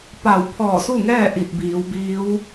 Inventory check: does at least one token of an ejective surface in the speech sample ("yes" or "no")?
no